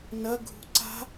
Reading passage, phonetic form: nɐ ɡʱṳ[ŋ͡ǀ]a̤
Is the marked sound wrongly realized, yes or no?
yes